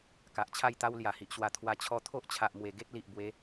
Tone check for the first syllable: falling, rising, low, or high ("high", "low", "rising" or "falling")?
low